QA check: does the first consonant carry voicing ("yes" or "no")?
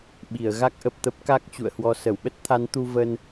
yes